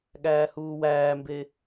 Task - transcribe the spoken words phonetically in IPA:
ɠ æː h uː w æː m b e

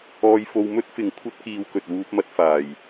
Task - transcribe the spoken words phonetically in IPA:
ɔː˧ j f o˧ w m ɵ˥ t̚ f ɪ˨ ŋ kʷʰ ɐ˥ t̚ k iː˧ w k ɵ˨ t̚ w uː˧ p̚ m ɐ˧ t̚ f aː˨˩ j

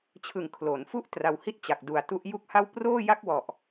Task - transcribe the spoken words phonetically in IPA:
t͡ɕʰ ɯ˨˩ ŋ kʰ l o˩˦ n f u˥˩ ʔ t r a˧ w h i˥˩ t̚ t͡ɕ a˨˩ k̚ d u˨˩ a̯ t u˦˥ ʔ j u˥˩ k̚ h a˥˩ w p r oː˥˩ j a˥˩ k̚ w ɔ˨˩ ʔ

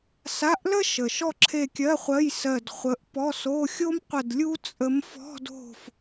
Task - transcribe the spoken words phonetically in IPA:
s a˧˥˧ ʔ l ə˥ ʃ ə˨˩ ʃ ɔ˦˨ ǁʰ e˦˨ kʲ ɜ˧˥˧ χʷ ɜ˧˥˧ j s ɜ˦˨ d χʷ ə˧˥ ʔ p ɔ˧˥˧ s o˧˥˧ xʲ o˥ m qʷ ə˦˨ d lʲ u˥ t͡sʼ ə˧˥ m f ɔ̤˧˥˧ d o̤˦˨ f

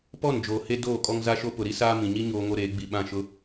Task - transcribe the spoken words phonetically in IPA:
p ɔ˦˨ n d͡ʒ oː˨ h e˦ d oː˦˨ kʼ ɔ˦ ŋ z a˦ ʃ o˦ p ʊ˨ ɾ i˦ s aː˦ m ĩ˨ ɲ i˦ ɲ oː˦ ŋ o˦ ɾ eː˨˦ ɡ͡b i˨ ɓ ã˦˨ ʃ ʊ˦

